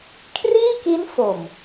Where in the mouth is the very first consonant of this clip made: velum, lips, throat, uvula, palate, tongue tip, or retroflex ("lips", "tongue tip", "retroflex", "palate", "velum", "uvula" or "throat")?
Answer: velum